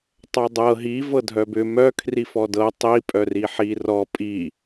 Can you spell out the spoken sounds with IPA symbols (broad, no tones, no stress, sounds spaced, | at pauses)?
tˤ œ dˤ ɤ ɦ i v ɤ dʱ œ b ʏ m œ kʰ r i f ɔ d ɤ tˤ i pʼ œ r i ħ i r ɔ pʼ i